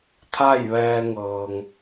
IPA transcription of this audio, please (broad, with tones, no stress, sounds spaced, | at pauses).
t̪ʰ a˥˨ j ʋ ɛː˧ ŋ ɤː˩ ŋ